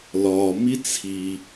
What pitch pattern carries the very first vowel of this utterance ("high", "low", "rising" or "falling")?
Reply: low